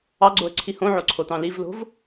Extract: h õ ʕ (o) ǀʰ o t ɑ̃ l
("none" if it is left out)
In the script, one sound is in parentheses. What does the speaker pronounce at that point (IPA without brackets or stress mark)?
o